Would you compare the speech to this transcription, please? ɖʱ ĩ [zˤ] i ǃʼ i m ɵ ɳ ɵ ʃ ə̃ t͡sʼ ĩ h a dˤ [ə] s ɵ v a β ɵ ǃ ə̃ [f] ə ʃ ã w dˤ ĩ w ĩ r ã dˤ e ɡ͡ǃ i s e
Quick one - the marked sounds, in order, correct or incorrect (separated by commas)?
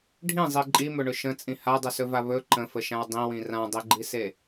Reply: correct, incorrect, correct